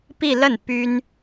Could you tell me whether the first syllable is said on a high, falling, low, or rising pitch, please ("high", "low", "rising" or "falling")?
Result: falling